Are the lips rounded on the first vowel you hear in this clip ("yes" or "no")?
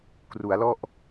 yes